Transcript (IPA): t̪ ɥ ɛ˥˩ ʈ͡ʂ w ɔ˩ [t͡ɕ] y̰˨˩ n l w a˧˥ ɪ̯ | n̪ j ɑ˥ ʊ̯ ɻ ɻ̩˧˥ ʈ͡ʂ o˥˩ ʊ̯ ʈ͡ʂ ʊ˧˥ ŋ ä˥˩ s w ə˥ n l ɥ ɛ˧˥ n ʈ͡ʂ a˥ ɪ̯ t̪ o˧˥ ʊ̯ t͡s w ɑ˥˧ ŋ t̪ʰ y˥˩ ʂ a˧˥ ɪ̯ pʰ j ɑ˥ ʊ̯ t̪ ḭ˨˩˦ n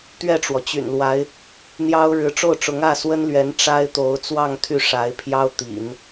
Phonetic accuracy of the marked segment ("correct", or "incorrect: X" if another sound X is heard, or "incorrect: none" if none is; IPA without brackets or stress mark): correct